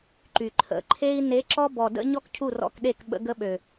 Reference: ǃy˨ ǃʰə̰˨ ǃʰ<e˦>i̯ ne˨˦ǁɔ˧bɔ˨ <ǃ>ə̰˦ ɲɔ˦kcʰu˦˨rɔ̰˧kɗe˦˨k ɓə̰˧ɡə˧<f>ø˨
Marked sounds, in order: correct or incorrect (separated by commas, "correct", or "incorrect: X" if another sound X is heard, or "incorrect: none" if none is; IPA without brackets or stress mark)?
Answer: correct, incorrect: d, incorrect: ɓ